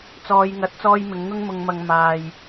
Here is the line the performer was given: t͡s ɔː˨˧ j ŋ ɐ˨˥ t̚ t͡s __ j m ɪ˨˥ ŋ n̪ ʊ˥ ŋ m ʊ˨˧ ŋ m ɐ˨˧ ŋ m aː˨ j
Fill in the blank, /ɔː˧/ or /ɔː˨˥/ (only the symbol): ɔː˧